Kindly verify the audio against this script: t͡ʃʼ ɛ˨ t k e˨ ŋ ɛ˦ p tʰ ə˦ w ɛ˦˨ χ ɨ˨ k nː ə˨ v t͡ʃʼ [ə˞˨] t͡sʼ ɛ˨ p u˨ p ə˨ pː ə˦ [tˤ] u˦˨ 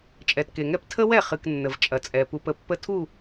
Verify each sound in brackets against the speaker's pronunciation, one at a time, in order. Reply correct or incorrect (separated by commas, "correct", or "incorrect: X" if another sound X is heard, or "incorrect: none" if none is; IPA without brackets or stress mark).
incorrect: ɐ˨, incorrect: tʰ